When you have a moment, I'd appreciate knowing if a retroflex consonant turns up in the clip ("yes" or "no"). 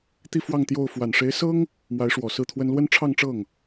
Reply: yes